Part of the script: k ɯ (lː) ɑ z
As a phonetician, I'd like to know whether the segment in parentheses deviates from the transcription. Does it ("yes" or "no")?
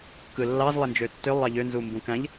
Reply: no